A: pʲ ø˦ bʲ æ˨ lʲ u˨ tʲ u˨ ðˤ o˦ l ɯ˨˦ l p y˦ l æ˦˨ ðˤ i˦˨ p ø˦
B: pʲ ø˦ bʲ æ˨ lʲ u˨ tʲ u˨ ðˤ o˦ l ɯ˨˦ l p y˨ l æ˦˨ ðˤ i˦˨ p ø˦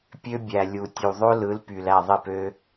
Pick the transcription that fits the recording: B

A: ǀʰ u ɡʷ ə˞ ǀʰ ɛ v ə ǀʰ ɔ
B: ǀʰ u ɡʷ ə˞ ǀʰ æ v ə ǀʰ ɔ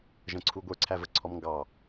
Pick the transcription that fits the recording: B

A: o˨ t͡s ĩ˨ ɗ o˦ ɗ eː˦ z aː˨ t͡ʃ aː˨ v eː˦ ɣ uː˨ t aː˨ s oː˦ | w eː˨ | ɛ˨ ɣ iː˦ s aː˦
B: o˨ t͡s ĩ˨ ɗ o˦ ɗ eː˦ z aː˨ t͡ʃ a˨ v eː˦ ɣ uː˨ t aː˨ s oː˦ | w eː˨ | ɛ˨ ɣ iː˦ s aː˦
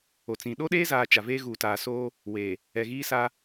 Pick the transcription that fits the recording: B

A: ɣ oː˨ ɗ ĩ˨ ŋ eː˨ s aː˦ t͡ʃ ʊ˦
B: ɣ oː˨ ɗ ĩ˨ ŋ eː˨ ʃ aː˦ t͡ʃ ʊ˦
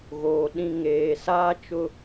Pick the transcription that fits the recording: A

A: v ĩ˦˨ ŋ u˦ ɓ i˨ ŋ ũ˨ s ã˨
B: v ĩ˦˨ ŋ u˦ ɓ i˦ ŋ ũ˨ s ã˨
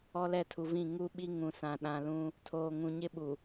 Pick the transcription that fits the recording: B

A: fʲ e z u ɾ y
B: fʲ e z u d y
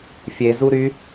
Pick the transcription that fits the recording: A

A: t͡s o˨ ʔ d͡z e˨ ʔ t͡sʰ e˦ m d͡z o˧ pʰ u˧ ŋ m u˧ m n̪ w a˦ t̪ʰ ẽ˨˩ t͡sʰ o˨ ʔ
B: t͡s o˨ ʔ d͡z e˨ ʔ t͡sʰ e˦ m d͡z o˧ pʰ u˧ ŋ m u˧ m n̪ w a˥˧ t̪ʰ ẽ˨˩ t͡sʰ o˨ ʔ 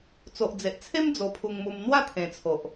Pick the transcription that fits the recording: B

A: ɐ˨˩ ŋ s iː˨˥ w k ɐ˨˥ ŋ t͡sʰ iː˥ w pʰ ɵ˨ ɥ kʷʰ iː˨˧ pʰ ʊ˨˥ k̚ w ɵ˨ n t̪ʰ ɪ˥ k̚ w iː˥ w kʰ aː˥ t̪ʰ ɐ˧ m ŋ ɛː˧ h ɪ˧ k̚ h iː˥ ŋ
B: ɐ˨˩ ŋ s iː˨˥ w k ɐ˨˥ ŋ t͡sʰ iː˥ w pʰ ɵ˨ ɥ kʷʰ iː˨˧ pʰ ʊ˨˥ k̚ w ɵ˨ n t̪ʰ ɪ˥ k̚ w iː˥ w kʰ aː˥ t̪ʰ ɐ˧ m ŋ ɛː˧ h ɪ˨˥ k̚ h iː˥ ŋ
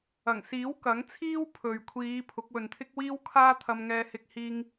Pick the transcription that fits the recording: A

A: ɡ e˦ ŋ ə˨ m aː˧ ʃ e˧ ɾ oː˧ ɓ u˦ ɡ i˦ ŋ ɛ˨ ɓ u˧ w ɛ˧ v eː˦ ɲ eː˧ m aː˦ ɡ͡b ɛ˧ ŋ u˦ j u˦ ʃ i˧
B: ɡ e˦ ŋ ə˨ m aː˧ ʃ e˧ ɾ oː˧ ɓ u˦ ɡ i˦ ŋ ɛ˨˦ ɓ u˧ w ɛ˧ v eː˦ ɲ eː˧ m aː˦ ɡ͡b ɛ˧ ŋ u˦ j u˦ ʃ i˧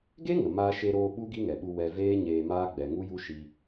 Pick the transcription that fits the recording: A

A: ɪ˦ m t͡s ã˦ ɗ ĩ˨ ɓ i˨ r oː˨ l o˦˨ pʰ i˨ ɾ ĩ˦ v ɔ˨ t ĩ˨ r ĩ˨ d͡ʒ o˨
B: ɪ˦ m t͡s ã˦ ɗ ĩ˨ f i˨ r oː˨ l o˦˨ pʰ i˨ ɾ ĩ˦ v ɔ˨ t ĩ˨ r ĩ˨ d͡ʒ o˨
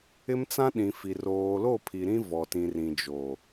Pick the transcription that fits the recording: B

